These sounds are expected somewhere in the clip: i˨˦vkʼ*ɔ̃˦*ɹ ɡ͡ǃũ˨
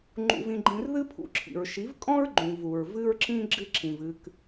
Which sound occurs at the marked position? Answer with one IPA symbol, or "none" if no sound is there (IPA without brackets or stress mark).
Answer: ɔ̃˦